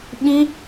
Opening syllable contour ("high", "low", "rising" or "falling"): high